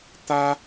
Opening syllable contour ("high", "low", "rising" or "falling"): high